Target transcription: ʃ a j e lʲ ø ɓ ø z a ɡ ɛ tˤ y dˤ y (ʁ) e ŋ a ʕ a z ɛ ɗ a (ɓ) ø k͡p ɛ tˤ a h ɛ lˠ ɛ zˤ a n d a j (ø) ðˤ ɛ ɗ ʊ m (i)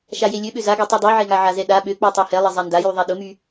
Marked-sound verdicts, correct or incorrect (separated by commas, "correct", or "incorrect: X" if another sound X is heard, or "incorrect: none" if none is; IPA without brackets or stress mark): incorrect: ʕ, correct, incorrect: y, incorrect: y